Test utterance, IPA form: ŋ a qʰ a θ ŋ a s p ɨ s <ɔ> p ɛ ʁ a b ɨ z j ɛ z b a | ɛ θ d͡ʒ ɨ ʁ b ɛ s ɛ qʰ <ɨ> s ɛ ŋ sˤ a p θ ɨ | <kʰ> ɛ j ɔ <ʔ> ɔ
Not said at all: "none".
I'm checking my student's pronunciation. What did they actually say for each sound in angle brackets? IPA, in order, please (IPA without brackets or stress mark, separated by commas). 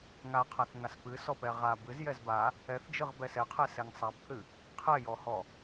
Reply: ɔ, ɛ, qʰ, h